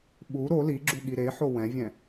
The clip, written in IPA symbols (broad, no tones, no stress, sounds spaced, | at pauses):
ɓ u ɾ o l i ɡ͡ǁ u ɠ i ɾ e ħ o w ɛ̃ vʲ ɛ̃